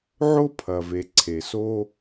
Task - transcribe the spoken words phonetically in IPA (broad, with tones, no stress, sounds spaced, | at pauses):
ʕ o˥ pʰ ɐ˩ v e˩ ǀʰ e˩ s o˦